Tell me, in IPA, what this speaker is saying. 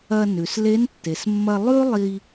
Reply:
ɐ˧ nʉ˩sle˧˥ntːe˩smːɐ˧ lˠʉ˥lˠi˧

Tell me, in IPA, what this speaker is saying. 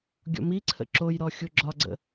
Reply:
ɡʲɔ̰miǀʰə̰ ǁojɾɔ xʲoɡ͡ǁɒɡ͡ǀə̰

